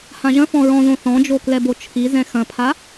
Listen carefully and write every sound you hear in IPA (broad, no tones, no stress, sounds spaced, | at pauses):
h ã ʒ ɐ̃ f ɔ̃ ɹ ɔ̃ ð õ θ ɔ̃ d͡ʒ o k l ɛ b o t͡ʃʰ i z ɛ̃ x ɐ̃ pʰ a